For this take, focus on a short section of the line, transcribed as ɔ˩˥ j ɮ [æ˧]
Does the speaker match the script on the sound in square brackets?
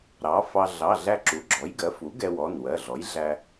yes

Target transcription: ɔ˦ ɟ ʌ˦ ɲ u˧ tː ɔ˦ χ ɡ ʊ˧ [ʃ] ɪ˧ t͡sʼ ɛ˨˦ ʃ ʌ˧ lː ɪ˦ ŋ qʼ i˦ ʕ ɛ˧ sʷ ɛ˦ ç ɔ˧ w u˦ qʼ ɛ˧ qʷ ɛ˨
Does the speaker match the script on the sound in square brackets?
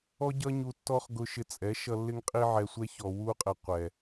yes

